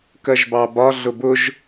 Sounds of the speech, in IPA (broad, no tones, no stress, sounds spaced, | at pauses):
k ɜ ʒ b ɑ b ɒ ɮ ʊ b ʊ ʒ